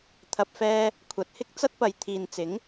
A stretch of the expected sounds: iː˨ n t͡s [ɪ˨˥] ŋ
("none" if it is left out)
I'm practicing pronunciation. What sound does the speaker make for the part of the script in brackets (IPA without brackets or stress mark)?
ɪ˨˥